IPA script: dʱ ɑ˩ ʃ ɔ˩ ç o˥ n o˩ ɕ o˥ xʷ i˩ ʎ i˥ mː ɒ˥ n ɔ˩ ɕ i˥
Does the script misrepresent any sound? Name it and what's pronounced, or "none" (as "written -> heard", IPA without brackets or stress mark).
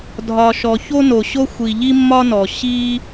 ɑ˩ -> ɒ˩